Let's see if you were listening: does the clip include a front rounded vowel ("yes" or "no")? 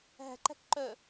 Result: yes